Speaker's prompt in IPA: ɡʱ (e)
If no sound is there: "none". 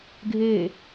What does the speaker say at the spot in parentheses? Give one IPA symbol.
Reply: e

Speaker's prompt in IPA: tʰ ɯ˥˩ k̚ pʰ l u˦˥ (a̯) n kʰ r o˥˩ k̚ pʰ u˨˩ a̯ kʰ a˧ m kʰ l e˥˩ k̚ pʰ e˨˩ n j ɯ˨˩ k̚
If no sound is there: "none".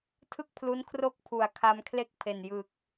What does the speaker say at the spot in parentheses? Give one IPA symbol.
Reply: none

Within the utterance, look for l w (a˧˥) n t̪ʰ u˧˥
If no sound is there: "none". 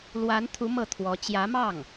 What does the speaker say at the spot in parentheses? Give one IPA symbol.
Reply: a˧˥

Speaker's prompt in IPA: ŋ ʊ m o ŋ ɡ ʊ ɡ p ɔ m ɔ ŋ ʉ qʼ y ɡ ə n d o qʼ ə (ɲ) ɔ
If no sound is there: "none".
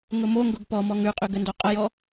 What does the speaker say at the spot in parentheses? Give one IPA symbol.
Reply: j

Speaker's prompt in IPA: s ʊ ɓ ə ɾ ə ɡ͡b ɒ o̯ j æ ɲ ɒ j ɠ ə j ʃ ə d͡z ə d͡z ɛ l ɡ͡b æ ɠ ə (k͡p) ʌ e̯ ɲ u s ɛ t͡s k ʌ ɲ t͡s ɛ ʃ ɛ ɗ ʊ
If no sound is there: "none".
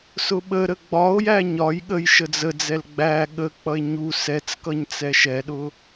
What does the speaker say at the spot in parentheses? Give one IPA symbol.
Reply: k͡p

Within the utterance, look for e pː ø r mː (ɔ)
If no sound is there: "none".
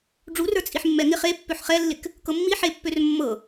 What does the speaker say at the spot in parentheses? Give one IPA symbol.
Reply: ɤ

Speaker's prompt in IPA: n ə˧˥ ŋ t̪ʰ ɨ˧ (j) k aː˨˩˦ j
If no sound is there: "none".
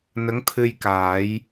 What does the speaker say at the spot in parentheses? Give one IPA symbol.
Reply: j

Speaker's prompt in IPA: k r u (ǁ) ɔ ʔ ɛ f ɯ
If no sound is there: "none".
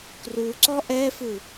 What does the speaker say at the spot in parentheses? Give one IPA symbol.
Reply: ǀ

